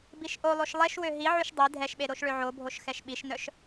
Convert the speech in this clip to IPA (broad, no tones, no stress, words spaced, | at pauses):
biʃʔolˠoʃ lˠeʃwø ɦiʕyʃ dˤi dʱɛʃɓe ɾoʃɭøʕobʱoʃ xɛʃɓiʃnœʃ